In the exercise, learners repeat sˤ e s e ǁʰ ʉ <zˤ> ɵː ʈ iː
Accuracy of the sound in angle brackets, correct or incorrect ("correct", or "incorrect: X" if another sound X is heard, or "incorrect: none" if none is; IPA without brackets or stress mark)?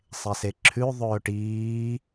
incorrect: ðˤ